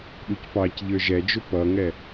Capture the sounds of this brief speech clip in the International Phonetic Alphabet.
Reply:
ɗ u c p ɑ c ʎ ə˞ ʒ ɛ d͡ʒ ʊ p ʌ ŋ ɛ

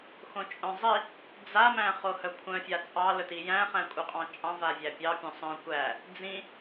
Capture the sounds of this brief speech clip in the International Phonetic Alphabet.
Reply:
x õ t͡ʃʼ œ̃ zˤ i | d͡z a m æ̃ χ o h œ kʷʰ œ̃ fʲ a t͡sʼ ɑ l ɵ t i j æ̃ χ æ̃ kʷʼ œ qʼ ɑ̃ t͡ʃʼ ɑ̃ v a vʲ æ pʲ ɑ pʲ õ sˤ œ̃ kʷ æ | d͡z ĩ

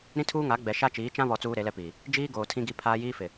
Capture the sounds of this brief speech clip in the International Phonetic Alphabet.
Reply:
ɾ ĩ˦ tʰ uː˦ ŋ a˨˦ ɡ͡b ɛ˨ ʃ a˦ t͡ʃ iː˨˦ t͡ʃ ã˦ β ɔ˨ t͡s uː˦ ɾ e˨˦ l ɛ˦ p iː˨ | d͡ʒ iː˦ ɡ oː˨ tʰ ĩ˦ ɡ i˦ pʰ aː˦ j iː˦ f ɪ˨

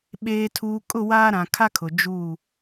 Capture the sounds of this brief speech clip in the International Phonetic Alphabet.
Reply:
ɓ eː˨ tʰ uː˨ kʼ ʊ˦˨ w aː˦ ɾ ã˨ kʰ a˦ kʰ ʊ˨ d͡ʒ uː˦˨

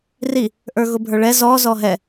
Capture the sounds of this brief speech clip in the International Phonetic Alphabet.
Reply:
r i | ʔ ə˞ ɣ ʊ bʱ ə˞ ɭ ɛ z ɔ z ɔ ɦ ɛ

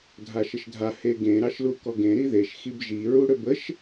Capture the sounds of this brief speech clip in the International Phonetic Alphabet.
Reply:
dʱ a ʃ ə ʃ dʱ a h e ɡ ẽ ɾ ɑ ʃ l u k ɔ ɡ ẽ ɾ i ð e ʃ x i b ʒ i ɹ u ɽ ø b ə ʃ

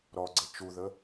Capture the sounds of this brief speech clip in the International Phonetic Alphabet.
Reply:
ɾ ɔ ɡ͡ǀ ə t͡ʃ u ð ə

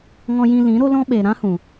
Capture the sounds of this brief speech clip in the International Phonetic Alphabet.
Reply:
ŋ ɔ̃˧ j ĩ˧ l ĩ˨˦ ɾ o˦ l ɔ̃˦ ɓ eː˨ ɾ ã˦ h ũ˨

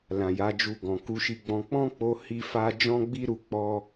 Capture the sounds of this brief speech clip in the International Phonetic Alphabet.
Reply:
l ã˨ j a˨˦ d͡ʒ u˧ ɡ ɔ̃˨ k u˨˦ ʃ i˧ ɡ͡b ɔ̃˧ k͡p ɔ̃˦ k͡p o˧ h i˧ f a˧ d͡ʒ ɔ̃˦ ɡ͡b i˦ ɾ u˧ k͡p ɔ˦

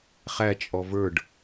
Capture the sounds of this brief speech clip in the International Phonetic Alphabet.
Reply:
χ æ t͡ʃʼ ɔ v ə˞ ɖ

